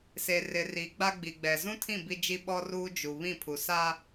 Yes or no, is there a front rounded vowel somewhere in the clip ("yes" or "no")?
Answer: no